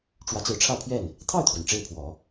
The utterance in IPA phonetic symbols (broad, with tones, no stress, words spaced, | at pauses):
ʈ͡ʂwä˧˥t͡sɹ̩˧˥ʈ͡ʂʰä˥˧pʰɥɛ˥˩n | t̪ʰɑ˥˩ʊ̯t̪ʰɥɛ˩n ʈ͡ʂe˥˩ɪ̯pʰwɔ˨˩˦